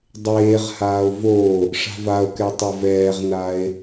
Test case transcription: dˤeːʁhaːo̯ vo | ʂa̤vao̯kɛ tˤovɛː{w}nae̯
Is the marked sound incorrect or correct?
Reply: incorrect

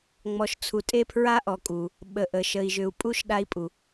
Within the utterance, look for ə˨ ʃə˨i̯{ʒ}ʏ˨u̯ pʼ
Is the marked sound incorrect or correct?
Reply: correct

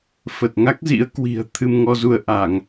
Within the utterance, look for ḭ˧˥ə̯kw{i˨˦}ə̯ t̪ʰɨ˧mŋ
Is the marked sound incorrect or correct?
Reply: incorrect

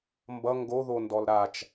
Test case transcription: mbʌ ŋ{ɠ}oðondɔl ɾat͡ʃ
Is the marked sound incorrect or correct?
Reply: incorrect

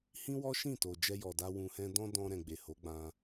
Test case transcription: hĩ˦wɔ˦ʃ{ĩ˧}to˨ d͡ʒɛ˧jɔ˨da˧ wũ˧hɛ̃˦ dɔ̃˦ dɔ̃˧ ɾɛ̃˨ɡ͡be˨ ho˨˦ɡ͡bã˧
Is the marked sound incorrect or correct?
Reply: incorrect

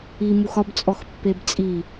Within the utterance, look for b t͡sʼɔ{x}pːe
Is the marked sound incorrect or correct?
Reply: correct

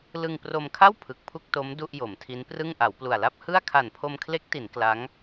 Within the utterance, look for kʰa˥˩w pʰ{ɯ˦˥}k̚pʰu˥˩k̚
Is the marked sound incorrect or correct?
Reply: incorrect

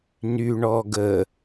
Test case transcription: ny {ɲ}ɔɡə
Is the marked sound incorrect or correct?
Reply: incorrect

